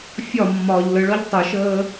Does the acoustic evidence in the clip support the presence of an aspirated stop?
no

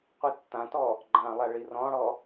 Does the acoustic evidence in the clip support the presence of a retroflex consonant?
yes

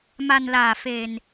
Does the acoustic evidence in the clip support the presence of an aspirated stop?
no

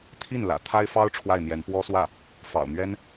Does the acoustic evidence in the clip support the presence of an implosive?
no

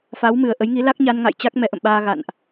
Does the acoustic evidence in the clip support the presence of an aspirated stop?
no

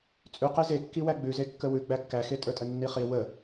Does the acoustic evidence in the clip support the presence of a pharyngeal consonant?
no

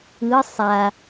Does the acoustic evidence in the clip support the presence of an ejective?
no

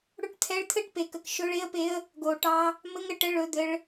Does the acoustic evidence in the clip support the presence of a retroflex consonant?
yes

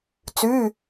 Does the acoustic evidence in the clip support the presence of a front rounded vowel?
yes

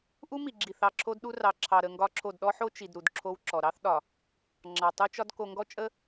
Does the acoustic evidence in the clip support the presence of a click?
yes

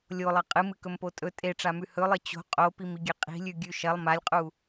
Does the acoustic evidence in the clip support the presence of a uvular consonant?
yes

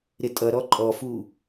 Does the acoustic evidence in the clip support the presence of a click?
yes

